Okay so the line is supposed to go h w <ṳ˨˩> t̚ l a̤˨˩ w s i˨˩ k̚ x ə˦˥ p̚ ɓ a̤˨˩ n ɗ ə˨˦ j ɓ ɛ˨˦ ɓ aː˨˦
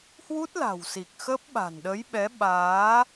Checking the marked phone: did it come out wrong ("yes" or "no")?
yes